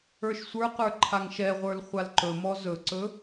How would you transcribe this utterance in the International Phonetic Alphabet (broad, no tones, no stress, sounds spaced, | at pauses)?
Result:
ə˞ ʃ sʷ ə˞ q ə˞ ǃʰ a ŋ ʃ ɛ ʁʷ ə˞ l χʷ a l ǃ ɵ m ɔ z ɵ ǀ ɵ